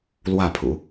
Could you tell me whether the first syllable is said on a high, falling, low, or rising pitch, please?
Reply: falling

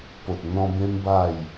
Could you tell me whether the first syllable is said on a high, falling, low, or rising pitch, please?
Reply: low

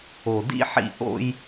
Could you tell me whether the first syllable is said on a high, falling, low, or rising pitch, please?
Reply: low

